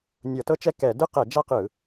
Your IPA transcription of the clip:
nʲ ɤ˧˩˧ t ɤ˥ t͡ʃ ɛ˥ k ɛ˧˩˧ d ɯ˥ q ɛ˧˩˧ d͡ʒ a˥ q ɯ˧˩˧

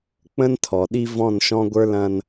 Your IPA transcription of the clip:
k͡p ə̃˦ n tʰ ɔ˨ ɗ i˦ v ɔ̃˦˨ n ʃ ɔ̃˦ ɡʷ ə˞˦ l ɐ̃˦ n

